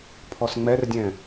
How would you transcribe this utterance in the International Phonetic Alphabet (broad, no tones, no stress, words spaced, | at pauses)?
pʰɔsŋ͡mɛrdʲɛ̃